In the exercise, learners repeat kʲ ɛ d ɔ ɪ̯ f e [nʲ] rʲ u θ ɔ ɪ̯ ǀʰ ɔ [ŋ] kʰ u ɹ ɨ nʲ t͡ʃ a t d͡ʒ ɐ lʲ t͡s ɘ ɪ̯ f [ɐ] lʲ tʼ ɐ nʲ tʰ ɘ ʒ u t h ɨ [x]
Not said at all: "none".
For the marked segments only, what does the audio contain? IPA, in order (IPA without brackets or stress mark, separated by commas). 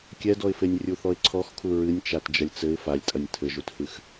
nʲ, x, a, x